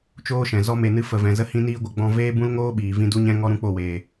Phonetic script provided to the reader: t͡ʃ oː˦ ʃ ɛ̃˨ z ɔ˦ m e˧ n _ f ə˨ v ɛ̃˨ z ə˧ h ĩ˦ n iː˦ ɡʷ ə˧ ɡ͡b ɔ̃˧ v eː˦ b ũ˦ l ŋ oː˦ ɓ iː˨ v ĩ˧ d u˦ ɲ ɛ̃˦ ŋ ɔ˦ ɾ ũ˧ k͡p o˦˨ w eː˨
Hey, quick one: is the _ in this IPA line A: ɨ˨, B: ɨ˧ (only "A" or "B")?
B